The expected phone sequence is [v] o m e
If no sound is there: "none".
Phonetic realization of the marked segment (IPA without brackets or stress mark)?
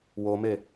w